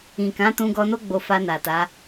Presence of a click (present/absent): absent